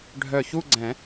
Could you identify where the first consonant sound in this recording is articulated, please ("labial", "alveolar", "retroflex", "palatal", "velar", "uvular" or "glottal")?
retroflex